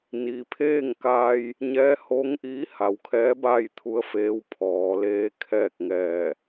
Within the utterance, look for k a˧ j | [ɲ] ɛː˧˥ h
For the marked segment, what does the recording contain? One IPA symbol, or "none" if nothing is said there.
ɲ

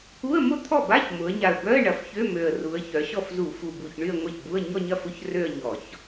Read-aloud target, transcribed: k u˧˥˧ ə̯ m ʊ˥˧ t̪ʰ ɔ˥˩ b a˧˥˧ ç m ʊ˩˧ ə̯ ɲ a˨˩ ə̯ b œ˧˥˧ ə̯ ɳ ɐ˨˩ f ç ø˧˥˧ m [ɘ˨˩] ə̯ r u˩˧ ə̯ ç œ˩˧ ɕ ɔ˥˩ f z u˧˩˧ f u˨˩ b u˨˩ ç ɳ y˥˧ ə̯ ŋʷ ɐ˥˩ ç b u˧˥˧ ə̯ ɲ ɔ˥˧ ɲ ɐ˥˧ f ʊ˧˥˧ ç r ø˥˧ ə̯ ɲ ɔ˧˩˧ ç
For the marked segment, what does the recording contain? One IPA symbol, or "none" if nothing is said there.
ø˨˩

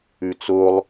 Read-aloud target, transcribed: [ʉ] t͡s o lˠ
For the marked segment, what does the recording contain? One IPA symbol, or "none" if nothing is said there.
ʉ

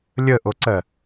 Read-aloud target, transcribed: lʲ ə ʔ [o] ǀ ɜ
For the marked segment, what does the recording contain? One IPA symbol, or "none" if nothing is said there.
o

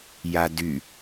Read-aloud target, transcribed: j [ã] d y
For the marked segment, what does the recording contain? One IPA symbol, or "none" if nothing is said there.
a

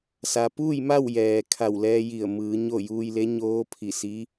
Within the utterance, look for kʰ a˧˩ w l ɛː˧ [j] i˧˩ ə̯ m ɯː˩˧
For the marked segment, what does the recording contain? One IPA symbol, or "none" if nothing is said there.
j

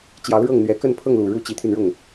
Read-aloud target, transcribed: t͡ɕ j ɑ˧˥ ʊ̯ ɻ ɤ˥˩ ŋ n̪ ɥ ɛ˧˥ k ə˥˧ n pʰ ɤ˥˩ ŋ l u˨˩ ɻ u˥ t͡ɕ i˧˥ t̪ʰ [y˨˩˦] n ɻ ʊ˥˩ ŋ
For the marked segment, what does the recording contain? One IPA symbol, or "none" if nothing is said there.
y˧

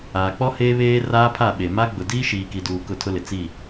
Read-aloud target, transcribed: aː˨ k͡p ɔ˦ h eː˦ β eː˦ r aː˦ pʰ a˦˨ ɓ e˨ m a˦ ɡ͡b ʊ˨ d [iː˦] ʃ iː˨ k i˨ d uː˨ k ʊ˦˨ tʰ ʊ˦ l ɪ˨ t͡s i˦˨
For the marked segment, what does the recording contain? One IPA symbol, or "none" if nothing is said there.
iː˦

